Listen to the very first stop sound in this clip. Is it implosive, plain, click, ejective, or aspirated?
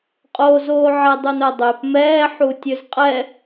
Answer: ejective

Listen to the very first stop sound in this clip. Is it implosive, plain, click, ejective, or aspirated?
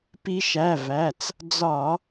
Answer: plain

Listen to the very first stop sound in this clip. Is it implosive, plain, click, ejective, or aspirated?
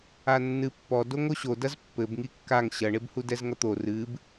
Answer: plain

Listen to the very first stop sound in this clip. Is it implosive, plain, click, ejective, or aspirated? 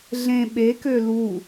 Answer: implosive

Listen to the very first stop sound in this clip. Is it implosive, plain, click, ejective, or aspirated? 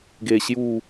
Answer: plain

